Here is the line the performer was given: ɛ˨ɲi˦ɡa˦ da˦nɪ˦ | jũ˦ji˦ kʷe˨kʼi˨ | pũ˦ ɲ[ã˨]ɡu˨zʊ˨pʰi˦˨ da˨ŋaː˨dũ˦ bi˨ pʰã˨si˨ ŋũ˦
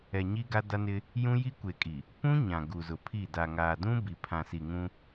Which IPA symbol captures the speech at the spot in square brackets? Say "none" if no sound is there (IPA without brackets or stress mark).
ã˨